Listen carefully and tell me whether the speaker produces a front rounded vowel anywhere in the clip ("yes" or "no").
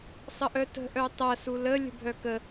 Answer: yes